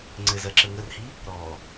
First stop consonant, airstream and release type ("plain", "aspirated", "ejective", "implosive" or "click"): click